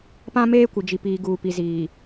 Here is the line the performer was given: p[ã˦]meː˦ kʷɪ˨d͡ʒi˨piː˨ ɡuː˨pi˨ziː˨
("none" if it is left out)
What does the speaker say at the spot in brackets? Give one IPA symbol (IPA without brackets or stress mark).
ã˦